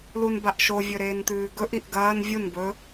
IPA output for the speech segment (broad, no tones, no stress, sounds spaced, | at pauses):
l u n b a ʔ ʃ o vʲ ɵ ɾ eː n t̪ ʉː ɡ ɵ ʔ i ʔ ɡ ɐː n vʲ u n b ɵ